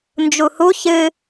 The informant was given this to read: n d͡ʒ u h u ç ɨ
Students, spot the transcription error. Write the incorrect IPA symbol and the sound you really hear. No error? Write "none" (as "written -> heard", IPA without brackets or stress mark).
none